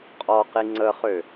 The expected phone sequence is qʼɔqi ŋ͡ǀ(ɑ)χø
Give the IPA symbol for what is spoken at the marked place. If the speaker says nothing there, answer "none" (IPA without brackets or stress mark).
ə